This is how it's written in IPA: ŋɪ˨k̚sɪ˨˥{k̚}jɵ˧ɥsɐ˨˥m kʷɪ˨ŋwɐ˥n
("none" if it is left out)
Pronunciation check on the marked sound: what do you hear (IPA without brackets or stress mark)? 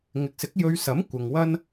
k̚